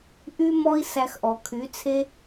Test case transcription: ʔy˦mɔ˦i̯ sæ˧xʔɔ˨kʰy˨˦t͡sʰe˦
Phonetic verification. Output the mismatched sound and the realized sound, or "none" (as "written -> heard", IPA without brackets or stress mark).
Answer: none